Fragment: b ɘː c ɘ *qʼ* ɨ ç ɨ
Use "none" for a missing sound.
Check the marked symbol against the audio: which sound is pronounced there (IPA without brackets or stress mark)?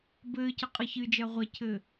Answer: qʼ